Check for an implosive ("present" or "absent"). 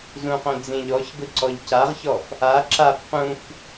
absent